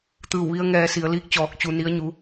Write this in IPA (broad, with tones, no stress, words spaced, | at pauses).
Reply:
t̪ɯː˧˩wʋi˧ə̯ ŋɛː˧si˩˧ə̯liː˧˥k̚ t͡ɕɔː˧˩k̚ t͡ɕu˧ ni˧˥ə̯ɲu˧˥